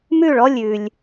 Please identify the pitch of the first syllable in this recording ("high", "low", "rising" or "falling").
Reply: falling